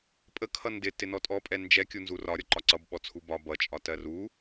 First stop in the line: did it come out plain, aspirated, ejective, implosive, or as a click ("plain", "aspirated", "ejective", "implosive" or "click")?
ejective